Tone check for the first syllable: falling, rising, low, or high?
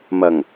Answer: low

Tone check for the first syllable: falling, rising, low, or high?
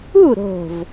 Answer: falling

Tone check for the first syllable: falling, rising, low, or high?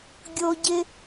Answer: high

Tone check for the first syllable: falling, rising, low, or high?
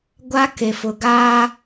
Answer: high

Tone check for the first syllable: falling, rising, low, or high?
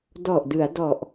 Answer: low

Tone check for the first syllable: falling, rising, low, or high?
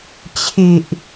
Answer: low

